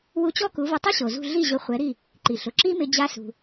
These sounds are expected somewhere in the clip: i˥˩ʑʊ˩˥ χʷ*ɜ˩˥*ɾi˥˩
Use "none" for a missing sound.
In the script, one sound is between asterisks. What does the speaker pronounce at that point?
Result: ɛ˩˥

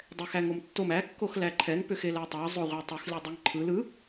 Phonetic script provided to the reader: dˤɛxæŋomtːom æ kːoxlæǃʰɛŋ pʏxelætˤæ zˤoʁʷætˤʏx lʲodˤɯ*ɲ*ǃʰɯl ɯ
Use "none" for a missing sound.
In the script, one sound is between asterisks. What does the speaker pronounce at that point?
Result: ŋ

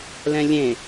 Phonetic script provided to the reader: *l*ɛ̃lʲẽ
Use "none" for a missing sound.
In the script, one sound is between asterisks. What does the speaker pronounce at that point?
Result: l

